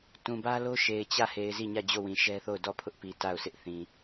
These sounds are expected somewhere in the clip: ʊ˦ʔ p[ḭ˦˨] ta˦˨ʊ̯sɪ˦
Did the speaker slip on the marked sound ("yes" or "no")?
yes